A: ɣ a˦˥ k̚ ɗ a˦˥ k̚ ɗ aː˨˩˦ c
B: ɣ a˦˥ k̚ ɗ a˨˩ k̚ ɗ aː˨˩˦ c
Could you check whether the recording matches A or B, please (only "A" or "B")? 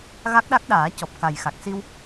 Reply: A